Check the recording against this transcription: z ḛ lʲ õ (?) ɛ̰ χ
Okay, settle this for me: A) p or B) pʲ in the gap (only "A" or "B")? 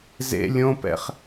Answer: A